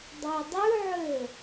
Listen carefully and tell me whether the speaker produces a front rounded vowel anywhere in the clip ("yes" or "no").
yes